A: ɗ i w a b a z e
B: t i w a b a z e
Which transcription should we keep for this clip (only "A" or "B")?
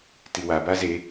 B